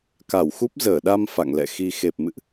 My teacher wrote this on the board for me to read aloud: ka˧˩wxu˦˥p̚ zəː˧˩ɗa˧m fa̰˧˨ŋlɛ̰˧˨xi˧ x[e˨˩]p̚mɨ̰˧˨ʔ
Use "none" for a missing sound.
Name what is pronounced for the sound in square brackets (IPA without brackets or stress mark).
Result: e˨˩